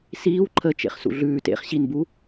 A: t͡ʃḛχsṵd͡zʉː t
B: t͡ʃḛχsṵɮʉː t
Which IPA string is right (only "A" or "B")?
B